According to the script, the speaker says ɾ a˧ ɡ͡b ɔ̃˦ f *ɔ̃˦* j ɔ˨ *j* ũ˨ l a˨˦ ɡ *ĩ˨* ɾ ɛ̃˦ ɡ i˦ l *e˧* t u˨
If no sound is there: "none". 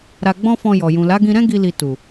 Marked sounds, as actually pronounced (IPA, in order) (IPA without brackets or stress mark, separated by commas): ɔ̃˧, j, ĩ˧, i˧